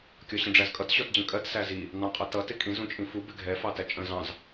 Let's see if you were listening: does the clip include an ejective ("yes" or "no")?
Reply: yes